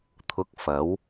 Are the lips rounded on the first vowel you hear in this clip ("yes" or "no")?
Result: yes